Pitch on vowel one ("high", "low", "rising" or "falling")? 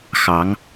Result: rising